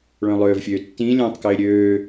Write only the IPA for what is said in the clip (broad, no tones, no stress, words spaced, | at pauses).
ɭœ̃lˠøːvfʲøːtːĩ lʲœ̃ːtˤkɪːɾʲøː